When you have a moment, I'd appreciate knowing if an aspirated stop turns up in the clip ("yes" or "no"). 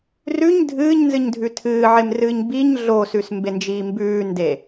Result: yes